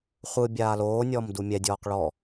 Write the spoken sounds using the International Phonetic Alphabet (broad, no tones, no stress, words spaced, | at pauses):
χʷɯ bʲaːloːnʲɔːm dumʲɛdʲɔːq ɭɔ